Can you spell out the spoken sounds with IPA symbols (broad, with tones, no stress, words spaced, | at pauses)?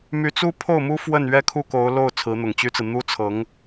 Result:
my˧˥t͡su˥pʰo˥˩ʊ̯mu˥ fwə˥˩nɥɛ˥ kʰu˥˩ko˧˥ʊ̯lo˥˩ʊ̯ t͡sʰɹ̩˧˥n̪ʊ˨˩ŋt͡ɕy˥t͡sɹ̩˨ n̪u˥t͡sʰɤ˧˥ŋ